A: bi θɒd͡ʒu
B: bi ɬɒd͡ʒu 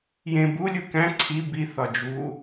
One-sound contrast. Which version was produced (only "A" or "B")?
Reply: A